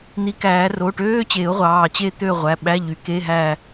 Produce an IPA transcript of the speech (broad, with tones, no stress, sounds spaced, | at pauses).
n̪ i˨˩˦ k æː˨˩˦ r o˩˧˩ ʈ øː˧˥˧ t͡ɕ e˨˩˦ ʊ̯ ʁʷ ɑː˩˧˩ t͡ɕ e˦˨ t̪ ø˦˨ ʁʷ æ˩˧˩ ɓ æ˧˥˧ ʎ y˨˩˦ k e˧˥˧ ɦ æː˦˨